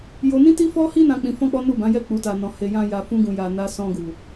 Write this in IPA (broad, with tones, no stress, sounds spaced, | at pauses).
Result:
j o˧ n ĩ˦ t i˦ f ɔ˦ h i˦ n ã˧ k͡p ĩ˧ f ɔ̃˦ k͡p ɔ˦ n u˦˨ b ã˨˦ j ɛ˦˨ k͡p u˨˦ t a˧ n ɔ̃˧ h e˧ j ã˧ j a˨ f ũ˧ ɡ ũ˨ j a˨ n a˧ s ɔ̃˧ ɡ u˨